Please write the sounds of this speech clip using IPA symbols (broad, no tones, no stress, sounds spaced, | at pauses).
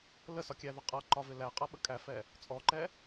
l ə s ɒ kʲ æ ð ʌ qʼ ʌ ǃ ɒ v ɪ l æ qʼ ʌ ɓ ə kʼ æ f ɛ | t͡sʼ ɔ ǃ ɛ